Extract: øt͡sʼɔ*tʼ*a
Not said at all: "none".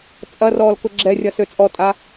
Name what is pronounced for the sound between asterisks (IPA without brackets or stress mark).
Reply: tʼ